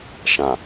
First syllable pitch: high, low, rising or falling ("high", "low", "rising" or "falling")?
low